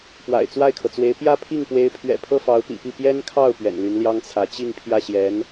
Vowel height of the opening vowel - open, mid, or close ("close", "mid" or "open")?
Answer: open